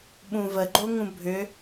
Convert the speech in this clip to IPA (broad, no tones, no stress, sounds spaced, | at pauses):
ɓ ũ v ə ɡ͡ǃ o ŋ ũ bʱ ʏ